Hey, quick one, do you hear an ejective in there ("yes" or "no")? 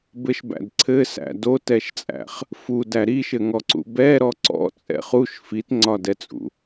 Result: yes